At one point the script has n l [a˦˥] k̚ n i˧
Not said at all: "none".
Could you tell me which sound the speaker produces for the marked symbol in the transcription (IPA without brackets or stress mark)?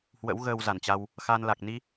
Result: a˨˩